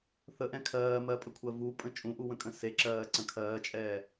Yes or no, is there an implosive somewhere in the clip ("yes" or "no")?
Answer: no